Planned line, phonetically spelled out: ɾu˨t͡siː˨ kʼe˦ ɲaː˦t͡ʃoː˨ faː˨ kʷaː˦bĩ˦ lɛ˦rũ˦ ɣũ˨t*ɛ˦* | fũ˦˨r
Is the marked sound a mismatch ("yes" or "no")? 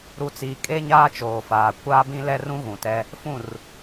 no